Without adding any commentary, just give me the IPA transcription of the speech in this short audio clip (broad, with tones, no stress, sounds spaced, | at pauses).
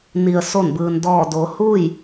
n i˩ ə̯ s o˧˩ n b ɯː˩ n d ɔː˧˩ d oː˩˧ h uː˥˨ j